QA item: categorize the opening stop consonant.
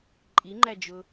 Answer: click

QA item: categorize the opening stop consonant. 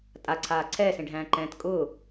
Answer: ejective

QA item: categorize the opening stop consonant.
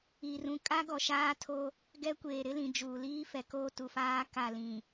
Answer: ejective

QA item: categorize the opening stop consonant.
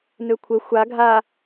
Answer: aspirated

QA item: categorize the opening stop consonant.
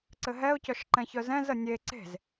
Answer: click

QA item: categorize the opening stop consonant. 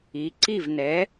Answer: click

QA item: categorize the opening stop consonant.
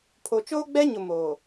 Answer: aspirated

